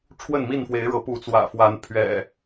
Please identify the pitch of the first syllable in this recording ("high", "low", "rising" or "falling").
falling